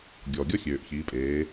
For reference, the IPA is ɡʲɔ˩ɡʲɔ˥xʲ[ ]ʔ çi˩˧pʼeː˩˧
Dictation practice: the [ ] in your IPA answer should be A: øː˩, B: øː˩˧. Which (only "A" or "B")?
A